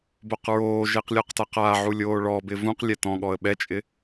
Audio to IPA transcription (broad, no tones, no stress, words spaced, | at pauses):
boqɹoːʒeq lʲɔqtaqaʕu lʲoːɭɔbɪ vũqlʲɛ tɔ̃ɠɔə̯ ɓɛt͡ʃʼɪ